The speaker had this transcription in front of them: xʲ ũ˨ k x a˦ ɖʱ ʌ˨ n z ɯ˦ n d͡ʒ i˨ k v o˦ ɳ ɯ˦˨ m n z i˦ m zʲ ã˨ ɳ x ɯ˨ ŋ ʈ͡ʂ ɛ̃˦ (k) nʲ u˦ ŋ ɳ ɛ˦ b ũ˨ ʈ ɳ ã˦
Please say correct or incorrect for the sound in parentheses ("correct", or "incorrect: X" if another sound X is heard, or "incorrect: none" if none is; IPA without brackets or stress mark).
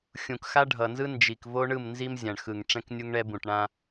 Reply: correct